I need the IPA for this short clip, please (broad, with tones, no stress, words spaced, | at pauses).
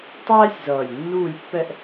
tˤæː˥sʲzʌː˨˩lʲ nːuː˦˨lʲpːɛ˦˨ʔ